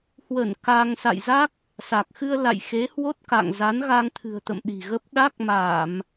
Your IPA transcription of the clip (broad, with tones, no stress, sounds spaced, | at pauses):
h w ə˧˩ n k a˧ ŋ s a̰˧˨ j z a˦˥ k̚ | s a˨˩ k̚ x ɨ˧ ə̯ l a̰˧˨ j x e˨˦ h w o˦˥ t̚ k a̰˧˨ ŋ z a˨˦ n ɣ a˧ ŋ t̪ʰ ɨ̤˨˩ ə̯ t̪ ə̰˧˨ m ɗ i̤˨˩ ɣ ə˦˥ p̚ ɗ a˦˥ k̚ m a˧˩˨ m